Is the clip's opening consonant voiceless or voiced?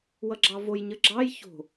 voiced